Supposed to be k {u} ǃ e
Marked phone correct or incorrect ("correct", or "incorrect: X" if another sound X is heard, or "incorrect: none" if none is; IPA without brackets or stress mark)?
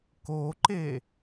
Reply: incorrect: o